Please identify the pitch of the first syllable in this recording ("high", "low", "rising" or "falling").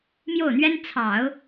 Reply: falling